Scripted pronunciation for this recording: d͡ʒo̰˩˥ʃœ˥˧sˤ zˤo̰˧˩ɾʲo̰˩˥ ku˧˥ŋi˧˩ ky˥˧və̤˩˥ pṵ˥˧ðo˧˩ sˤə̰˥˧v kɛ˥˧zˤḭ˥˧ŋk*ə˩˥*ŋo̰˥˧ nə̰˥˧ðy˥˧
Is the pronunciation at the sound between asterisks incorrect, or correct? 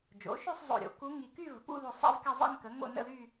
correct